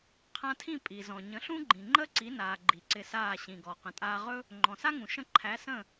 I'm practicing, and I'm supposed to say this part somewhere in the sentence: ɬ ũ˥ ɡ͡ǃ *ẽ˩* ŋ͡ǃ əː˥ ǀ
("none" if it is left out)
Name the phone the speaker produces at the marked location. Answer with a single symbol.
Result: ĩ˩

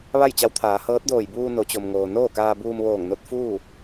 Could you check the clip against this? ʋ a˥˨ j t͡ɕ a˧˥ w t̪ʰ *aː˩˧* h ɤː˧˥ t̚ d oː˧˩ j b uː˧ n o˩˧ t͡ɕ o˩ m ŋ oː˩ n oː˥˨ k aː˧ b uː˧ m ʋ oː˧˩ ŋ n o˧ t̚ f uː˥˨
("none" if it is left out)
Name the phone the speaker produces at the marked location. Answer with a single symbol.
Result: aː˩˧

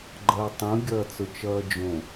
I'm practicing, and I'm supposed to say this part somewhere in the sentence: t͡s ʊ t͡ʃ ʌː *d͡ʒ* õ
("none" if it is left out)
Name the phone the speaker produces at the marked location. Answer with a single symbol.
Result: d͡ʒ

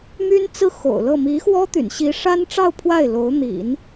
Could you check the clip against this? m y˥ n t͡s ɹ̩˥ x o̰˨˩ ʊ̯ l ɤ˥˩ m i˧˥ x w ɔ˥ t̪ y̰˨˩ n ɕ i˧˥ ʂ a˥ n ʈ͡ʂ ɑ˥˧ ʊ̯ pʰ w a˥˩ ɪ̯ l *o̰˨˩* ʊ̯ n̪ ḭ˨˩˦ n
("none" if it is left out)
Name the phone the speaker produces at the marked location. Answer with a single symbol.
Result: o˧˥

